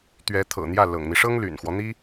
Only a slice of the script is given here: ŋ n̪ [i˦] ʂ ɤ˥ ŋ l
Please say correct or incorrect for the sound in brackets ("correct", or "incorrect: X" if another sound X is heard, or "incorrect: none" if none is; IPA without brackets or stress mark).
correct